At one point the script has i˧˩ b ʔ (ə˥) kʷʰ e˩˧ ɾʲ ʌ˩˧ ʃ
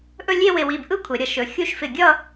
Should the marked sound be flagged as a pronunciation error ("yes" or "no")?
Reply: yes